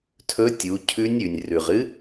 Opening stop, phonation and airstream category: aspirated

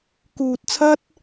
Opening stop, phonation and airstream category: plain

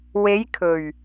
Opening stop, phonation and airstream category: aspirated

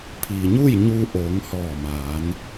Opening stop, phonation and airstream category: aspirated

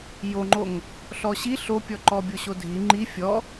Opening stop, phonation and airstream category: click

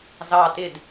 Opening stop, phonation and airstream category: plain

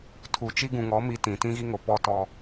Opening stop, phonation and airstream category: aspirated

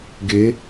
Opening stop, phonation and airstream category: plain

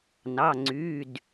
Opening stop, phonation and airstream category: click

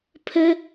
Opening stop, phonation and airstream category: aspirated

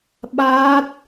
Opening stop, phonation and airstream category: implosive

